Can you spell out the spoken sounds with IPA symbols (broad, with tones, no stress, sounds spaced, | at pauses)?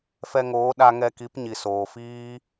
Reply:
f ɛ˧ ŋ oː˨˦ ɗ a˧ ŋ ɛ˧ k i˨˦ p ɲ i˨ s oː˨ f iː˦